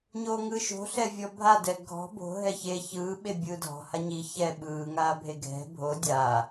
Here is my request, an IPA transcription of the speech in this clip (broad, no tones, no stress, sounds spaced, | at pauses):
ɲ oː ŋ ɯː ʃ o̤ ɬ ɛ vʲ ɔ bʱ a d ɛ ɡʱ ɔ̤ b o̤ ɦ ɛ ç e ç ɯː ɓ e bʲ ɯː dʱ ɔ̤ h a ɲ i ç ɛ ɓ ɯː ŋ aː bʱ e ɡʱ ɛ̤ bʱ o dʲ a